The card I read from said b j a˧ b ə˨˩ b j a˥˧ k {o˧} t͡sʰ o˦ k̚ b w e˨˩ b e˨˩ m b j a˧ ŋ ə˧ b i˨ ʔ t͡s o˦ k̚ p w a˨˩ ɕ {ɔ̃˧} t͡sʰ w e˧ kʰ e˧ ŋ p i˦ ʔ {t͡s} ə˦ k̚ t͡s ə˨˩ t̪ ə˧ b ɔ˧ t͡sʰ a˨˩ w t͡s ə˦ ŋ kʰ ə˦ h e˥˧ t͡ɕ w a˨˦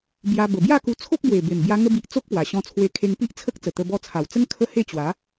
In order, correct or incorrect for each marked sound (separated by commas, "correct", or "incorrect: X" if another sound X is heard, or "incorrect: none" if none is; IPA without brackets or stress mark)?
incorrect: u˧, correct, incorrect: t͡sʰ